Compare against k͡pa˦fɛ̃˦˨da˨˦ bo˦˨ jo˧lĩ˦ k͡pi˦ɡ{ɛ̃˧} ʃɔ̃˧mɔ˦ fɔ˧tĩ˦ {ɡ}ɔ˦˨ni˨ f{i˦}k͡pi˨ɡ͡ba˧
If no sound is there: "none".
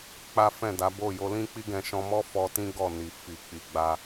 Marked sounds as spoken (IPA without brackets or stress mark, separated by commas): ɛ̃˧, ɡ, i˨